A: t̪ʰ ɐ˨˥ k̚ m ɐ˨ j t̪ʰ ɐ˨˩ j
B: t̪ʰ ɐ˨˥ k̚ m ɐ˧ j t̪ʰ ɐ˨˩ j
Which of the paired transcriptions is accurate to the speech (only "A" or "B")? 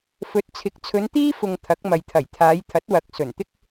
A